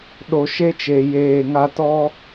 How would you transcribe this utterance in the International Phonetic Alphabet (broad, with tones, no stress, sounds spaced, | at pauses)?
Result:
ɗ o˨ ʃ e˦ t͡ʃ e˨ j eː˦˨ ŋ a˦ t ɔ˦